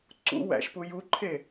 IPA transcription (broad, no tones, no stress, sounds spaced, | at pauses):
ǀ ṵ w æ̰ ʃ p u j u ǃʰ e